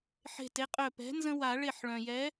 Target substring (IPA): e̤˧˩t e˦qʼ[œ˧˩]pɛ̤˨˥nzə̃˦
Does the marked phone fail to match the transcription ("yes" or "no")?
no